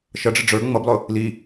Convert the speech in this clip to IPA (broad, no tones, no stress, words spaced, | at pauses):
ʃʌɖ͡ʐə ɖ͡ʐə˞ ŋ͡mʌblˠʊ | li